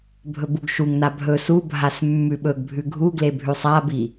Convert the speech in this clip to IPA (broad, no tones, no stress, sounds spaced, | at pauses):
bʱ ɵ b u ɡ ʃ u ŋ n a bʱ ɵ s u bʱ a s mː ʉ ɓ ɵ ɡ bʱ ʉ ɡʱ u ɡ l e bʱ ʉ sˤ a b i